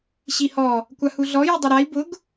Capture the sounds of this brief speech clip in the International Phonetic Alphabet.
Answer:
ɕ i h ɔ | kʷ a h u ɮ ɔ j u dˤ u ɾ a i̯ b ʊ ɡ

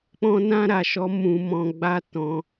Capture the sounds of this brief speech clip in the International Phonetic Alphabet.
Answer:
k͡p ɔ̃˧ n ã˧ ɾ a˨ ʃ ɔ˨˦ m ũ˧ m ɔ̃˧ ɡ͡b a˦ t ɔ̃˧

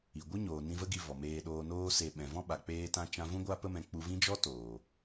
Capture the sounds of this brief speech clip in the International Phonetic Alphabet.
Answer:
i˨ ɡʷ ɨ˦ ɲ oː˨ n ĩ˧ v ə˦ ɡ i˧ v ɔ˨ m eː˧ ɗ oː˨ n oː˧ s e˨ ɓ ɛ̃˨ v ɔ̃˦ ɓ a˨ k͡p eː˧ t ã˧ t͡ʃ ã˧ v ũ˧ ɡʷ a˧ p ə˧ m ɛ̃˨ k͡p u˧ v ĩ˦ d͡ʒ ɔ˦ t oː˨

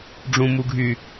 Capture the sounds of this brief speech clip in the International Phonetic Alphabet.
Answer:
ɖ͡ʐ ũ m u ɡʱ y

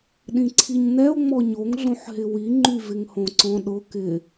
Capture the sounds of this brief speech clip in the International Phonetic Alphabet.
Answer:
ɗ ĩ ǀʰ i ɲ n ɛ o̯ ŋ͡m ɔ ɲ o ŋ ɮ õ ħ ɦ ɪ w i ŋ͡ǃ y v ɪ ŋ h õ ǀ ɔ̃ ɗ ʊ k ɪ

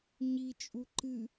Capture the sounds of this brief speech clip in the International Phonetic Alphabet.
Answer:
ɲ i t͡ʃʼ u ǃ ɨ

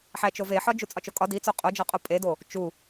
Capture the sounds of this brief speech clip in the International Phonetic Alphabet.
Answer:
ħ æ t͡ʃ o v e ħ ɒ d͡ʒ u t͡sʼ ɒ t͡ʃ o kʼ ɒ d i t͡s o qʼ o d͡ʒ ɒ qʼ o pʼ e d o | t͡ʃ u

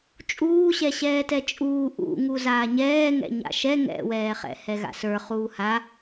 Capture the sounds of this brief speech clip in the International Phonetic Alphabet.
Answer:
t͡ʃʼ uː ɕ ɛ ɕ ɛː t ɛ t͡ʃʼ uː ʔ ṵ ŋ u z aː ɲ ɛː ŋ ɛ̰ ɲ a̰ ʃ ɛ ŋ ɛ̰ w ɛː χ ɛ̰ h ɛ ɣ a̰ s ə˞ χ uː h a

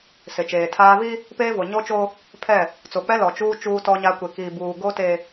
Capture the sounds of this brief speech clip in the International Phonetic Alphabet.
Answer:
s ɪ˨ t͡ʃ eː˨ tʰ aː˦ β i˦ | p eː˦ v o˨ ɲ o˦ t͡ʃ o˦ | pʰ ɛ˦˨ | t͡s o˨ k͡p ɛ˦ l ɔ˨ t͡ʃ uː˦ t͡ʃ uː˦ t ɔ˦ ɲ a˦ kʷ e˨ k iː˨ b uː˨ ɡ o˦ t e˨

